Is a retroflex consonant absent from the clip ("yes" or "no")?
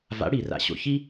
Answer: no